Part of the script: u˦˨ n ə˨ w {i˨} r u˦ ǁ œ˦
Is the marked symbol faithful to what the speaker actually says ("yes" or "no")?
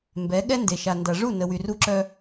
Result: no